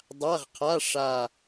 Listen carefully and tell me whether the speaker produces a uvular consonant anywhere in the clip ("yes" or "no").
yes